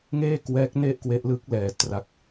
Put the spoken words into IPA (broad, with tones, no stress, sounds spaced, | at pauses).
ŋ eː˥˩ k w ɛː˦˥ k̚ n e˥˩ ʔ k w e˦˥ ʔ l ɯ˦˥ k̚ l ɛː˧ t r a˦˥ k̚